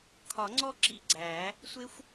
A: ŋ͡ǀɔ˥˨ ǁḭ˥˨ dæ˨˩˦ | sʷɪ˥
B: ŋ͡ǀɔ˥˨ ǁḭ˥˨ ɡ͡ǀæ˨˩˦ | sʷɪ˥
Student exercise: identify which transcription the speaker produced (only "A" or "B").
B